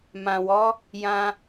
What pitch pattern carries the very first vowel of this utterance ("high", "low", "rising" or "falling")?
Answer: low